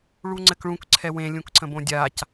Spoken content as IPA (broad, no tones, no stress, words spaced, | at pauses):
ɭuŋ͡ǀɘkɭũk ǀʰɛwẽ lʲũkǀə̃bõdʲac